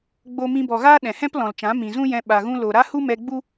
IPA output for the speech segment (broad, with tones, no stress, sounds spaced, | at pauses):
ɡ͡b o˧ m ĩ˧ b ɔ˨ ɣ aː˦ ɗ ɛ̃˨ h ɛ̃˦ p l ɔ̃˨ l t͡ʃ ã˨˦ m ĩ˨ z ũ˦ j ɛ̃˧ ɓ a˨ ɣ ũ˧ l o˨ ɾ a˦ h u˦ m ɛ˧ ɡ͡b u˦